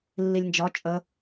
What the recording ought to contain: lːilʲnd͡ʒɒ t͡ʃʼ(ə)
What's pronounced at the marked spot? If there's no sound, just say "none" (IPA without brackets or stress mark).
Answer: ə